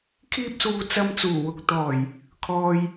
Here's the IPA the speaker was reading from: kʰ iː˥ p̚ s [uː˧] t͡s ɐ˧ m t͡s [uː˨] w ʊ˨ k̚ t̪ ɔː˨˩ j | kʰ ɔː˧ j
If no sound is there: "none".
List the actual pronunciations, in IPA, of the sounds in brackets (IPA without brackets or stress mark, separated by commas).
uː˧, uː˨˩